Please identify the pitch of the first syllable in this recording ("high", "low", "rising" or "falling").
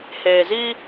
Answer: low